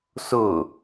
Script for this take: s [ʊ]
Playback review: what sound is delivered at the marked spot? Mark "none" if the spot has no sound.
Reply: ʊ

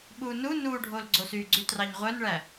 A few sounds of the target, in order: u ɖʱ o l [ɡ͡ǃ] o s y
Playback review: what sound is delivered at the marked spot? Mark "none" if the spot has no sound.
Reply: ɡ͡ǀ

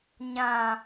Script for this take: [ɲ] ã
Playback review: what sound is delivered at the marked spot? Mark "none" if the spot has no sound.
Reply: ɲ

